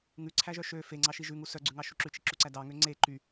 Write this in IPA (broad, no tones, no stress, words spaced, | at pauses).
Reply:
ŋʉǀʰæʒœ ʃø feŋ͡ǀɑʃi ʒʉŋu sœɡ͡ǀʉŋɑʃu ǁʉt͡ʃiǁuǀæ dɑŋø ŋ͡ǀe ǃy